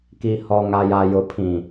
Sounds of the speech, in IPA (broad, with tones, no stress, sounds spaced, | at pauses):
k i˨ h ɔ˨ ŋ a˨ j a˨ j ʊ˨ pʰ ĩ˨